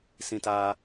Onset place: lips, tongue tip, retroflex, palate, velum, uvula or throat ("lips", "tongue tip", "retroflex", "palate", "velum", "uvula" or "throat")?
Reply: tongue tip